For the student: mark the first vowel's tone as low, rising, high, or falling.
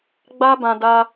high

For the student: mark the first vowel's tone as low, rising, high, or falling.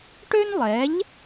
high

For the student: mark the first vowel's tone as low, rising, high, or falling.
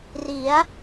rising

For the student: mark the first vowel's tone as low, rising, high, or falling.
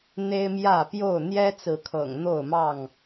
high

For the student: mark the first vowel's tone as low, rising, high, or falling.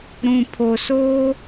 low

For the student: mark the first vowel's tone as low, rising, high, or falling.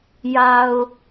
low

